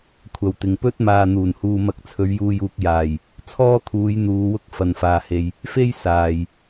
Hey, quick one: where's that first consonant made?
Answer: velum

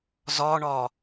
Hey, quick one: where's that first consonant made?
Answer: tongue tip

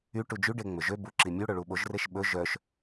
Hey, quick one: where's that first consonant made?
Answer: retroflex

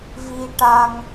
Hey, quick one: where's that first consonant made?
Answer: lips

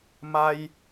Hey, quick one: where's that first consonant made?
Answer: lips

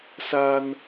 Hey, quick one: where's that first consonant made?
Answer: tongue tip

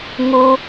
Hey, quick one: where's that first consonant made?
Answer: velum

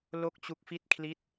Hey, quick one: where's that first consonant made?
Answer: tongue tip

